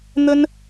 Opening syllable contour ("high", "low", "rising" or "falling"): high